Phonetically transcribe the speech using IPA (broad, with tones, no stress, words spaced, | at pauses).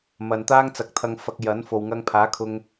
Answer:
mɐ˨nt̪aː˥ŋt͡sɐ˨˥k̚t̪ʰɐ˧ŋ fɐ˧k̚jɐ˨˥nfo˨w ŋɐ˧ŋpʰaː˨˥kʰʊ˧ŋ